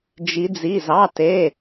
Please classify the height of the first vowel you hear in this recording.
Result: high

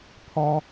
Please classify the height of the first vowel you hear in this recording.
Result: low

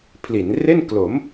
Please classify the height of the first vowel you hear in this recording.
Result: high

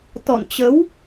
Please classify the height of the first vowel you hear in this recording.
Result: mid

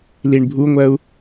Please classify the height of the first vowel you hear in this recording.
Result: high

